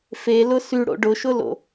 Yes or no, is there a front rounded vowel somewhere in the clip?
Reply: yes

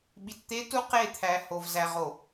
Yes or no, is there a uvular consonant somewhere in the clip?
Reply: yes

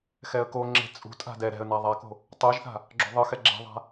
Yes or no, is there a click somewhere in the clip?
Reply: yes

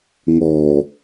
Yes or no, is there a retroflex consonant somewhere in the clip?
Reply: no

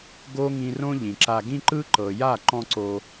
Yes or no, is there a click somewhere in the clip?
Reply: yes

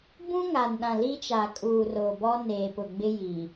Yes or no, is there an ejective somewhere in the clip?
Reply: yes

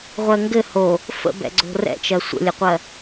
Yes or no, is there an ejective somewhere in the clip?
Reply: no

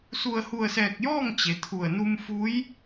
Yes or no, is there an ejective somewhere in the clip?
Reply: no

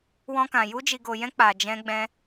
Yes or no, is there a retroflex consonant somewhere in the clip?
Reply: no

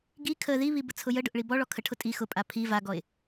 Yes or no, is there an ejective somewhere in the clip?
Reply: yes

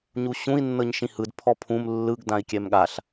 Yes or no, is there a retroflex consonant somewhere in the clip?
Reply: no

